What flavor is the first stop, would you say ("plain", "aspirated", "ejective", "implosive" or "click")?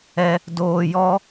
plain